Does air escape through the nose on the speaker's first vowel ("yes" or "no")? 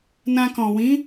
yes